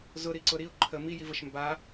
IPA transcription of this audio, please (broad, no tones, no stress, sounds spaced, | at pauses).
z ʊ ɾ i ǀ ʊ ɾ i ʊ̯ ǃʰ ə m i j i v ə ʃ m b a